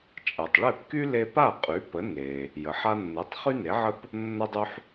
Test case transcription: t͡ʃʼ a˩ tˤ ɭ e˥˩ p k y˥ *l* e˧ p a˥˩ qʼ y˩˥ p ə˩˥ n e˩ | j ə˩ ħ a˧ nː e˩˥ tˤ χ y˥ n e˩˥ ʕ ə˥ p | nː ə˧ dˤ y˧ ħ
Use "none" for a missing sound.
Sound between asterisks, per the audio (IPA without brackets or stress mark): l